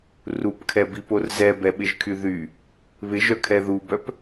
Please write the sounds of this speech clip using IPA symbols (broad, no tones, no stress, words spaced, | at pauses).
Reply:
rupkʰɛbipor zɛbɛɓɪʒkʰy ðy | βɪʒœkʰɛ ðubœp